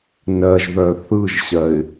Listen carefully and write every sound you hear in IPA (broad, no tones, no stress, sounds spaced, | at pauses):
n ɜ ʒ ð œ θ ɯ ʒ ɕ ɜ ɪ̯